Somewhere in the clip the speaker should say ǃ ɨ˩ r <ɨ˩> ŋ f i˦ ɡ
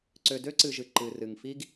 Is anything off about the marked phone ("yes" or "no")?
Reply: no